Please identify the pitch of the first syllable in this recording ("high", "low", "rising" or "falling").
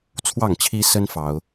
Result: falling